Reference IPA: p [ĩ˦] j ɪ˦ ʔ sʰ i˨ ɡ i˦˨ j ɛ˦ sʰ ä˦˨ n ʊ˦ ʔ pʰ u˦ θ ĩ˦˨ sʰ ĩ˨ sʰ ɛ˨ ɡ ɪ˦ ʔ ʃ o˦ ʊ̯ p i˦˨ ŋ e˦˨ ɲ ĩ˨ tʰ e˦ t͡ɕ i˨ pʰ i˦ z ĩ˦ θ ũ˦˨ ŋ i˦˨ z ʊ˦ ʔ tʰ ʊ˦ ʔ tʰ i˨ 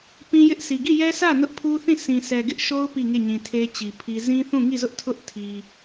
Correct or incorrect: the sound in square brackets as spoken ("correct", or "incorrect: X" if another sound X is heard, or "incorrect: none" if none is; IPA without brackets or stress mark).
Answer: correct